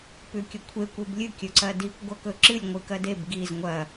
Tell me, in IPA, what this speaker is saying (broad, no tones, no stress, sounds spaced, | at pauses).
p ʉ kʲ ɵ kʷʰ e kʷ e b lʲ ɨ kʲ ɵ ǀ ɐ d i kʷ ɡʷ ɐ k ɵ ǁ ɨ lʲ ŋʷ ɨ k ɐ d e b ɡ i z ŋʷ ɐ